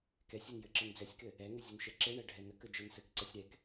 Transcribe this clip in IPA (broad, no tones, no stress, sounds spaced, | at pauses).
k ɛ sʲ ɛ n j ɘ ǁ ə n d͡z ɛ sʲ k ɘ | ɛ ŋ ɘ zʲ ɘ n ʃ ɛ ǁ e ɳ ɛ ɖʱ ɛ n ə k ə d͡ʒ ɛ n s ɘ k ǀ ɛ sʲ ɾ ɛ k